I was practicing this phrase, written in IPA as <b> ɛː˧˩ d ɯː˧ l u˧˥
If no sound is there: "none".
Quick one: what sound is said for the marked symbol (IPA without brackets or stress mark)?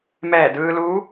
m